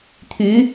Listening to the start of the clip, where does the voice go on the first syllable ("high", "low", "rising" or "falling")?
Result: rising